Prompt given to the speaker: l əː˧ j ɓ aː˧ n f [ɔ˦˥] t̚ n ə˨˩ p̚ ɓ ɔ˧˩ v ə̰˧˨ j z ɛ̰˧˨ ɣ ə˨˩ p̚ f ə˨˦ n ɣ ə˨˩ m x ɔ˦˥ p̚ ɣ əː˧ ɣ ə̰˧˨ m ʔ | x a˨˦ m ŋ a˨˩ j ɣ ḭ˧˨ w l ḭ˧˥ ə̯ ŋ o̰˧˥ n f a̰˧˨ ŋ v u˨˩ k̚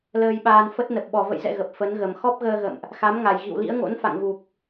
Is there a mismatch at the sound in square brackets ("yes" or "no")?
yes